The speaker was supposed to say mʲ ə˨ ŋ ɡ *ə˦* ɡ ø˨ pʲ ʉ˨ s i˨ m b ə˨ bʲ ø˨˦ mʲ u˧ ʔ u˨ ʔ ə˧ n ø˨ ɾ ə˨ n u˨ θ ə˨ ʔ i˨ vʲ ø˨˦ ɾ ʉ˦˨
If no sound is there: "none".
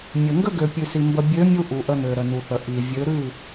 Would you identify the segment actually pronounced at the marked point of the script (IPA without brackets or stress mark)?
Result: ə˦